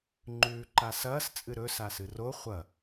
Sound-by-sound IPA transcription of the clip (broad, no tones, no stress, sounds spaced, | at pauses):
ŋ͡ǃ ʉː ǃ a s ɐː s t͡sʼ ɨ ɾ ɵ s a s ɨ r o χʷ ɐ